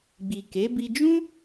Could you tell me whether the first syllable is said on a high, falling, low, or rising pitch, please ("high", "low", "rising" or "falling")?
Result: low